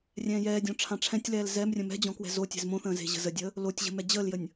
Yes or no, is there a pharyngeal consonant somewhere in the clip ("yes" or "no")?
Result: no